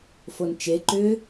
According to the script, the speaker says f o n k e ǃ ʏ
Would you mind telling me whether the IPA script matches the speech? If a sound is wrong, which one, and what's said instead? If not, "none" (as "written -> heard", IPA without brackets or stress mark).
k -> t͡ʃ